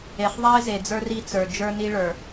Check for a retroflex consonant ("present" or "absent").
present